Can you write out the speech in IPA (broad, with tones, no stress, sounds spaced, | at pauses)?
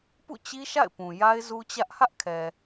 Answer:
p ṵ˦˨ t͡ɕ i˦ ʃ a̰˦˨ ɪ̯ p ũ˨ j a˦ ɪ̯ z u˦ t͡ɕ ä˦ ʔ h ä˦ ʔ kʰ ɛ˨